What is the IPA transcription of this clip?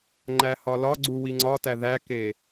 ŋ͡ǃæhɒlɒɡ͡ǀu wiŋ͡ǀɒtæ ðæke

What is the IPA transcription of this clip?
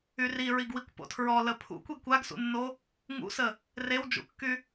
yri ɹiɡwikʷpo̰tʰɹɔ ləpʰṵ kʷeɡkʷaɡsṵnːo | ŋṵsə | rewd͡ʒṵkːy

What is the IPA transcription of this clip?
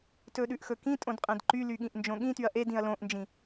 tɵɗʉʔxɵkĩ tʼõdqʼẽdǃy lyɠĩʔnd͡ʒõɠĩ tyɐ̯ʔed ĩɐ̯lõʔnd͡ʒĩ

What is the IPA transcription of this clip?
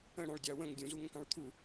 ə̃ɽɑ̃ɭ dʲɑwə̃ŋ dʲũzuŋə̃kɑ̃ɭ t̪ʰu

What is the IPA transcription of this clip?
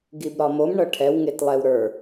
ɡibɾɒmom ɳɤʈʰɛw ŋetlˠɛwɾə˞

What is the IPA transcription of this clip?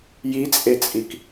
jit͡sʼet͡sʼik

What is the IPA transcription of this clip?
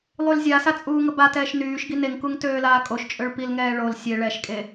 lˠylzʲasa t͡sʼuːŋəbatɛːʃ nyːʃɡi neŋkuŋ tøːlaːkʼoʃt͡ʃʼøɭ pilŋɛː ɭol sʲe ɭɛʃkʼe

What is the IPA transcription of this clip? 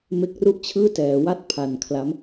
me˦˥k̚ru˥˩ʔt͡ɕʰɯː˥˩tɛː˩˦ wa˥˩t̚pʰa˨˩nkʰla˦˥m

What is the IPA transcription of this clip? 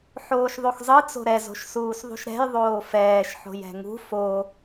ħoːʃðˤoxzˤɯ t͡so̤ɾɛ zo̤ʃsuːsðˤṳʃɾɛ̤j ðˤoːfɛːʃ ħo̤jɛ̤ŋṳ fo

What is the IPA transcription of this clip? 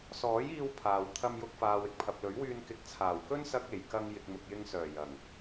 sɔː˨˥jiː˧w pʰaː˨w t̪ʰɐ˧mjʊ˧k̚faː˨w ɪ˨k̚pʰɐ˨p̚lɵ˨˥ɥwyː˧n kɪ˨˥k̚t͡sʰaː˨˩wkɵ˥n sɐ˧k̚e˨˩j kɐ˧ŋ jɪ˨k̚mʊ˨k̚jɪ˧ŋsœː˨˩ jɐ˨˩ŋ

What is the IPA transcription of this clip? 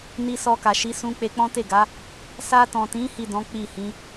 ni˧sɔ˧ka˨ʃi˨˦ sũ˦ k͡pe˧k͡pɔ̃˦te˦˨ɡa˨˦ | sa˧tɔ̃˨tĩ˨˦ hi˦˨dɔ̃˨˦ k͡pi˦˨hĩ˨˦

